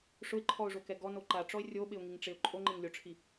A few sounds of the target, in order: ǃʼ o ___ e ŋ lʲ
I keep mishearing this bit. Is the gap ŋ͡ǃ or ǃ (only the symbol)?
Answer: ŋ͡ǃ